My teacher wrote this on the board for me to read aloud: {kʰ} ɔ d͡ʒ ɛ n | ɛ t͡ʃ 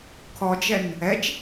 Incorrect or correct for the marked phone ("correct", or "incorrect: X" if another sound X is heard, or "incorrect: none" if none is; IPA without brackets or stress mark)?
correct